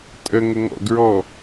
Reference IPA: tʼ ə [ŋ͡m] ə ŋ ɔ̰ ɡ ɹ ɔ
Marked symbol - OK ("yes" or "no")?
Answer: no